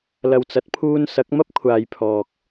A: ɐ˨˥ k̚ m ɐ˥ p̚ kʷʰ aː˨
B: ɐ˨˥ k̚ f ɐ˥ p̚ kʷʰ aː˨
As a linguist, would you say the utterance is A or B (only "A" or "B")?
A